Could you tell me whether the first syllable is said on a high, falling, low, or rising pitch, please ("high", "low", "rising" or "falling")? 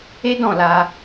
high